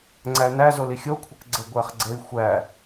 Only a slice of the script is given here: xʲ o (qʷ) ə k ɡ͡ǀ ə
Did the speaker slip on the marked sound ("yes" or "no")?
yes